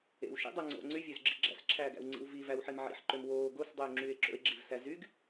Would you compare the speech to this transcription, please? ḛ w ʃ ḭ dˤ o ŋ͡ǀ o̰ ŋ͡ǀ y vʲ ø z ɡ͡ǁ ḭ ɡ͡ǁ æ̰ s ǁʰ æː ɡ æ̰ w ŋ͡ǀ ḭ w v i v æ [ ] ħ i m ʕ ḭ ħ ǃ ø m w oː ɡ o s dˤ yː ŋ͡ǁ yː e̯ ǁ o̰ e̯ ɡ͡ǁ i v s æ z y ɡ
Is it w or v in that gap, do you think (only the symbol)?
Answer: w